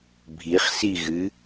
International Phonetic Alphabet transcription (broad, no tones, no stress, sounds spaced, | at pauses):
bʱ i χ s i ɣ ɨ